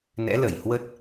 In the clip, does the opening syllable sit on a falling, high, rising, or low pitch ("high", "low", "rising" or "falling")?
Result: rising